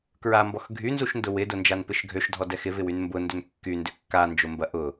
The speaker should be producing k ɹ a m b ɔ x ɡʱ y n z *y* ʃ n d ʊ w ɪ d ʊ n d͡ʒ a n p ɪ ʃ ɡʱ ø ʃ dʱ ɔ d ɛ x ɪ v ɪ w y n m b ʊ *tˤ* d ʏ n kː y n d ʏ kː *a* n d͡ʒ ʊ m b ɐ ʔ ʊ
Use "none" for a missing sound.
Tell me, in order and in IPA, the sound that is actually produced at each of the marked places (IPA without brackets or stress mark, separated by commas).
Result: u, n, a